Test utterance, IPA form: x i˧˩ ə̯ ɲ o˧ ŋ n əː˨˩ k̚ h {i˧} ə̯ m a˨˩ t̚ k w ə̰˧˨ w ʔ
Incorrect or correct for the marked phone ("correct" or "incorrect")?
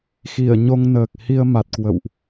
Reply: correct